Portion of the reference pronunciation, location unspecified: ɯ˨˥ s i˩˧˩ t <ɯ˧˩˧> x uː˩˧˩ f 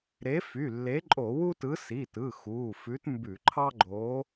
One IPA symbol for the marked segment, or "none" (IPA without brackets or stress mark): ɯ˩˧˩